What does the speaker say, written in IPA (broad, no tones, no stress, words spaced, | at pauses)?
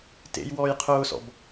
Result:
tḛjwɔːjqʰʊːsɔ̰b